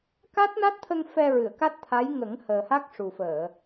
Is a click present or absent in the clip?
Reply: absent